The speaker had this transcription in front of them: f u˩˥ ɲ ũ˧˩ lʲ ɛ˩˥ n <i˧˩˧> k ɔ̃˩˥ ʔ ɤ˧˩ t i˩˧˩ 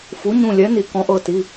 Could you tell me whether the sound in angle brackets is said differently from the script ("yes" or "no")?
no